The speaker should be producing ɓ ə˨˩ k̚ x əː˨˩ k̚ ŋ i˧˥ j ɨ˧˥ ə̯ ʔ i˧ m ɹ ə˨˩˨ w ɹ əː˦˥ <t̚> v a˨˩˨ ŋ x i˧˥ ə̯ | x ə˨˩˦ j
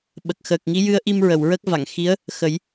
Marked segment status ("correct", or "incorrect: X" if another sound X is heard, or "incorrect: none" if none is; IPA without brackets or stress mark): incorrect: k̚